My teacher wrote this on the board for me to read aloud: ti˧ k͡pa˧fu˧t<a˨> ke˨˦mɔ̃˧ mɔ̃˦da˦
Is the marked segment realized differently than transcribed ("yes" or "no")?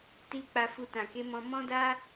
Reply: yes